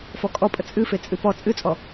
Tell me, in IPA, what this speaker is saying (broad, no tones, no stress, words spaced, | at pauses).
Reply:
fɔkʼɔ pʼət͡sʼɨ fet͡sʼɨpɔ t͡sʼɨt͡sʼɔ